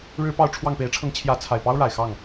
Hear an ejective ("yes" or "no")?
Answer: no